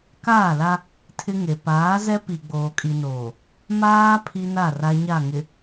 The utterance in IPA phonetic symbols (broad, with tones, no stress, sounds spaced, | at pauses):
k aː˦˨ l a˦ | tʰ ɪ˦ ŋ e˨ p aː˨˦ z ɛ˦ p i˨ ɡ͡b oː˨ kʼ i˨ n oː˨ | m aː˦ pʰ i˦ n a˦˨ r a˦ ɲ a˦˨ ŋ ɪ˨